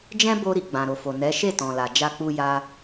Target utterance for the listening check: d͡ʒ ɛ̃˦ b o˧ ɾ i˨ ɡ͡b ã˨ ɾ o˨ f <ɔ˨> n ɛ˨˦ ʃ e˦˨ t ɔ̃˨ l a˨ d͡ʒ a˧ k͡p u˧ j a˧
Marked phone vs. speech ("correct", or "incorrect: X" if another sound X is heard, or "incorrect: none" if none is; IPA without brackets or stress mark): incorrect: o˨